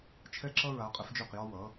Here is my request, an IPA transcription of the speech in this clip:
t͡ʃʰ ɛ˧ ǁ ʌ˧ ɹ a˩˧ qʼ ə˩˧ f d͡ʒ ø˧˩ q j ɒ˧ w ʌ˩˧

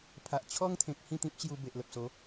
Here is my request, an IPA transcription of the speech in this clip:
pʰ a˨ ʔ t͡ɕʰ ɔ˦ ŋ t̪ʰ ẽ˨ k̚ h ĩ˥˧ t̪ ĩ˦ p̚ t͡ɕ j u˧ b e˨ ʔ l ə˨ p̚ s o˨˦

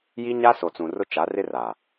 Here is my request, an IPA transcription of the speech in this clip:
j i˦ ɲ a˦ s o˨ t͡s ũ˨ r ʊ˦ t͡ʃ a˨˦ r ɪ˦ r a˨

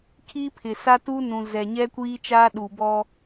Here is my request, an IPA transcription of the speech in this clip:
kʰ iː˦ pʰ ɪ˨ s a˦ t uː˦ n ũ˨ z ɛ˨ ɲ ɛ˦ kʷ iː˦ t͡ʃ aː˦ ɗ uː˨ b ɔ˦

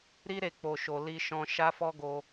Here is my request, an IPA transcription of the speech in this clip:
ɾ i˧ ɾ e˨ k͡p o˨ ʃ o˨ l i˧ ʃ ɔ̃˧ ʃ a˦ f ɔ˦ ɡ o˧

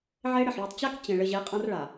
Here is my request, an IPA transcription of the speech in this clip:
ʕ e˦ ɽ ɘ˨ ħ ɭ e˨ tˤ t͡ɕ a˦ k t͡ɕ ẽ˨ ɭ ɘ˨ ʑ e˨˦ qʼ ã˦ r ɭ a˨

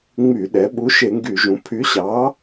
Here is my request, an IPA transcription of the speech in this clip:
ŋ͡m y˧˩˧ ɗ ɛ˩˧ ɓ u˨˥ ʃ e˧˩˧ ŋ ɡ y˧˩˧ ʒ ũ˩˧ pʰ y˨˥ ɕ ɑ˨˥

